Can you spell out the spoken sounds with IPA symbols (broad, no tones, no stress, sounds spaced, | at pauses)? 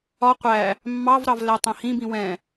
ɒ qʷ æ | mː ɑ v ɾ ɑ v l æ tˤ ɛ̃ h ĩ b ĩ w ɛ̃